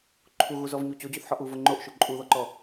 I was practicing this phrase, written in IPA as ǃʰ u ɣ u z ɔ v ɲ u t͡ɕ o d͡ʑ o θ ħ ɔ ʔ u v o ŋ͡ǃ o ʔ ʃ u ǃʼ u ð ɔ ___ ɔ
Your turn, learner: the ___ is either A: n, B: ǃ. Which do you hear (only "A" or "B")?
B